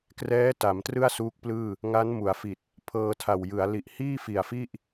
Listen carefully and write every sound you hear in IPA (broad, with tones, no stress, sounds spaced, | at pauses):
k r ɛː˦˥ t a˩˦ m t r ɯ˥˩ a̯ s uː˦˥ k̚ p l ɯː˥˩ | ŋ a˦˥ n m u˩˦ a̯ f i˨˩ t̚ | pʰ ɤː˧ tʰ a˨˩ w j ɯ˩˦ a̯ l i˨˩ ʔ h iː˥˩ f i˨˩ a̯ f i˥˩ ʔ